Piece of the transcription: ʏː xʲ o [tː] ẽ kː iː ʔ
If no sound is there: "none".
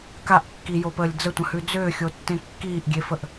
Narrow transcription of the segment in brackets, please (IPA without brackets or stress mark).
tː